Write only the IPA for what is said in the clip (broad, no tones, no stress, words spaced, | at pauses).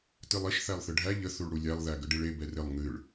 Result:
tɨlˠiʃ θælˠθɨɖʱæ ʎə θuɭɽulʲælˠ ðæɡəɖiɭe bɛrɪlˠ ŋɨɭ